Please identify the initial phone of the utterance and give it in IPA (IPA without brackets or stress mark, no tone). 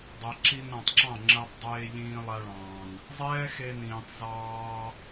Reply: dˤ